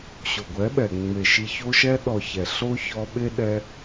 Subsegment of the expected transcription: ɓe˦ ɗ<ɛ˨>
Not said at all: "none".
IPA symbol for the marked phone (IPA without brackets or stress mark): ɛ˦